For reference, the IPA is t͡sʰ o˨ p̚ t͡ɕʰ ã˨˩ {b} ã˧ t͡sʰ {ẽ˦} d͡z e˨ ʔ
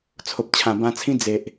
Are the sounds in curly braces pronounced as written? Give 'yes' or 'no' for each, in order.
yes, no

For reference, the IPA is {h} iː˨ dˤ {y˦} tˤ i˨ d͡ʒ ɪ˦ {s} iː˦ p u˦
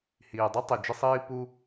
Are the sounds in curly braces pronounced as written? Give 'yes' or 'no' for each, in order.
yes, no, no

